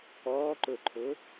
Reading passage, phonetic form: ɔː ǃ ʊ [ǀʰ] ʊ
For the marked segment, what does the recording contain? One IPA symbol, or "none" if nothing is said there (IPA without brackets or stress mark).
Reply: ǃʰ